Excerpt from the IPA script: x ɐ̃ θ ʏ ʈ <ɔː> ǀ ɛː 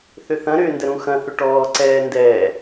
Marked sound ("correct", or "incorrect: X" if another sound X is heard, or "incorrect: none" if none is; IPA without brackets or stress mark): correct